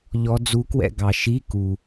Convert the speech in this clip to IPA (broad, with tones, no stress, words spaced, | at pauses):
ʎɔ˦˥d͡zu˦˥kwɛ̰˥˧ ɡɑ˨ ʃi˧˥˧ ku˨